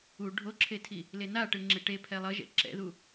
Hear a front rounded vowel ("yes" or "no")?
no